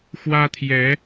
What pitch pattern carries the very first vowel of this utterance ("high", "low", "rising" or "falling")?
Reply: high